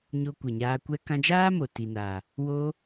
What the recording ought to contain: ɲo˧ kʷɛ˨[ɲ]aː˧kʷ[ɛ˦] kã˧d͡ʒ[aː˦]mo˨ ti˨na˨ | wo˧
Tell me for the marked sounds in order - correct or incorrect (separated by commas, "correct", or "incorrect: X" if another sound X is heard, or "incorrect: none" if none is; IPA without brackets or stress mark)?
correct, correct, correct